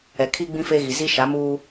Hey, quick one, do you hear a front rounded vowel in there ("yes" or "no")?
no